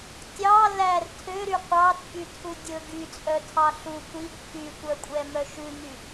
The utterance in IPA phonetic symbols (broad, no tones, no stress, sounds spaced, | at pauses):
tʲ ɑ l æ r tʰ ø ɾ y qʷ ɑ t͡sʼ y tʰ u dʲ ɵ ɡ y t͡sʼ œ tʰ ɑ ɬ u kʷ i ɡ pʰ y tʷ œ kʷʼ ɛ m œ ʃ ʉ ŋ y